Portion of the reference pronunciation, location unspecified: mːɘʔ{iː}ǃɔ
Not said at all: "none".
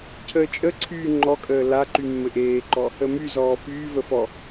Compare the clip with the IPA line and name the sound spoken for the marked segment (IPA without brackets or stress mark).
eː